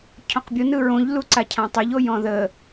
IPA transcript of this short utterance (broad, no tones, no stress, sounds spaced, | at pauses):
cʰ ɔ̃ q bʲ o n ɯ ɹ õ ʎ l u ǀ a cʰ ã tˤ ɘ ʎ o j ɔ̃ ð ə